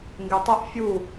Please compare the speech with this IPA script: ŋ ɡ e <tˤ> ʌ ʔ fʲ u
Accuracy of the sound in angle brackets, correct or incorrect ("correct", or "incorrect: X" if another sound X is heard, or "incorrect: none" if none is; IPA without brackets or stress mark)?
correct